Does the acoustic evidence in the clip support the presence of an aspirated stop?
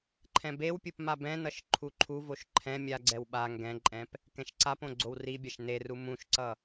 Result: yes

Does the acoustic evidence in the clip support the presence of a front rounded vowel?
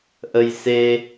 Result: no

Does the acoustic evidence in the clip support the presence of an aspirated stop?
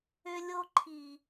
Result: yes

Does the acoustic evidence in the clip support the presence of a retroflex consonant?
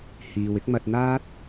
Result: no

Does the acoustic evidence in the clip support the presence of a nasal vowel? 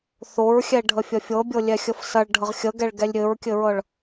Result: no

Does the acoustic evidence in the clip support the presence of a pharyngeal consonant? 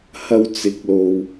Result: no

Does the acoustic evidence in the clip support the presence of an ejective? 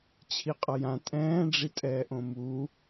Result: yes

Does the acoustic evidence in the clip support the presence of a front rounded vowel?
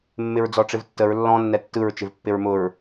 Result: no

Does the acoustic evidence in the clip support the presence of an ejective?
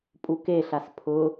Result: yes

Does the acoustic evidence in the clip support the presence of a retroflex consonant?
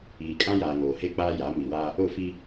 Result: no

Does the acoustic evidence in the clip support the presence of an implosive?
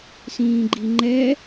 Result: no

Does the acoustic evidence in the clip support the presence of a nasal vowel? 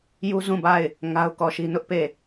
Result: yes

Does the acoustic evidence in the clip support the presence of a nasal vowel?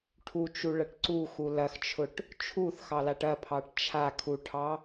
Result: no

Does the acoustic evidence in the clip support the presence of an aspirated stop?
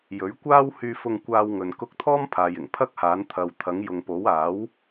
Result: yes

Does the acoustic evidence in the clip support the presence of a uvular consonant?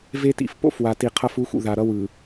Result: yes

